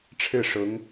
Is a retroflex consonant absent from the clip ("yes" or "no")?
no